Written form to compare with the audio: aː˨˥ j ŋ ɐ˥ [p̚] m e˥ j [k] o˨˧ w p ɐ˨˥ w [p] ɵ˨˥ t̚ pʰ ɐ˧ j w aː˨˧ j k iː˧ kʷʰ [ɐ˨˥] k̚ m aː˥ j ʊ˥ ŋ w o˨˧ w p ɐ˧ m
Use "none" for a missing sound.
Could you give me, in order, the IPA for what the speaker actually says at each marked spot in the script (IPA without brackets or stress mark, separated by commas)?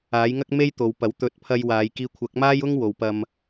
k̚, t̪, t̪, ɐ˨˥